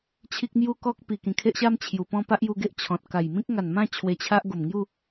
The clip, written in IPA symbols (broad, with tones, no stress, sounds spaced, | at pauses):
t͡ɕʰ i˦ k̚ m j u˦ k ɔ˦ k̚ p i˨˩ k ĩ˨˩ kʰ e˦ ʔ ɕ a˦ m t͡ɕʰ j u˨˩ p ɔ̃˥˧ p a˦ ʔ j u˧ ɡ e˦ ʔ t͡ɕʰ ɔ̃˨ t̚ k a˨˩ j m ĩ˦ k̚ ŋ a˨˩ n m ã˥˧ t͡ɕʰ w e˧ t͡ɕʰ a˦ ʔ ɡ o˨˩ m ŋ j u˥˧